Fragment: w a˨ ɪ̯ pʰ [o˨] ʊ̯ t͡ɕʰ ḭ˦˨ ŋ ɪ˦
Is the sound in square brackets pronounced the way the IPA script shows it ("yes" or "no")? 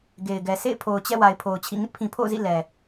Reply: yes